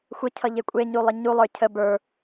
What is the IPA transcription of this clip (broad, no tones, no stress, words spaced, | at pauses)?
xʷəcʰʌ ʎekʷʼeɲu lˠəɲulˠə˞ cʰə bə˞